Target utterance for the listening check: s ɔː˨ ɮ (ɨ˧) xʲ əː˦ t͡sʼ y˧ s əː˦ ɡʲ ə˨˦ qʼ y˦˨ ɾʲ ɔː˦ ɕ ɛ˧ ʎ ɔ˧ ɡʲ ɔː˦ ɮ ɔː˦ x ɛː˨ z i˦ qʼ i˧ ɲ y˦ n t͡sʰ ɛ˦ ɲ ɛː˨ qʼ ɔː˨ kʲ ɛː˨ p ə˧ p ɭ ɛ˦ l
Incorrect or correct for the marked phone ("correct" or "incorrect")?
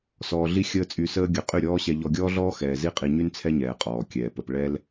incorrect